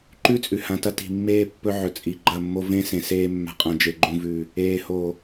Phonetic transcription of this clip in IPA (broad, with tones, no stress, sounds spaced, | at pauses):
ǃ ʉ˦ t͡sʼ ʉ˨ h ã˨ t ɐ˦ t i̤˨ mː eː˦ pː ɵ˦ ʕ ɵ˨ t͡sʼ i˨ ɡ͡ǃ ɐ˦˨ mː o˦ v ẽ˦ s ẽ˨ s eː˦ mː a̤˨ qʼ ã˨ d͡ʒ e˨ ɡ͡ǃ ũ˨ v ʉ˨ | eː˨ h o˨